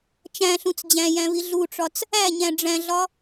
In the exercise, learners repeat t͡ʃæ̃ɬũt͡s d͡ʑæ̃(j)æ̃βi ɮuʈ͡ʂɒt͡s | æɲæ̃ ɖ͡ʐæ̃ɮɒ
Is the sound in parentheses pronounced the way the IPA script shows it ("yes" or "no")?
yes